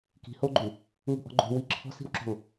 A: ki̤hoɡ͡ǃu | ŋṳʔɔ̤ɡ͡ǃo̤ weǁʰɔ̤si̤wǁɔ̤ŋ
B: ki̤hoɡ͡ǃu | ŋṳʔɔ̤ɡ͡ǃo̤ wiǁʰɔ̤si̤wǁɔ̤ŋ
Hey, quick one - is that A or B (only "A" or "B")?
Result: B